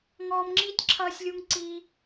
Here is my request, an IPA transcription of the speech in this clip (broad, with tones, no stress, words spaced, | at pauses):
ŋɔː˧mŋ͡ǁiː˦tʲǁʰʌː˧sʲlʲu˧ŋ ǀiː˧